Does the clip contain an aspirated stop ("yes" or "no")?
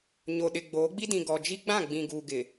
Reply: no